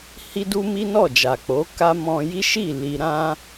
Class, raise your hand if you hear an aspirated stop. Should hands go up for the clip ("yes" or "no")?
no